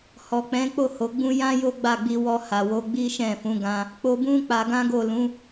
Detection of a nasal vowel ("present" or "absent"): present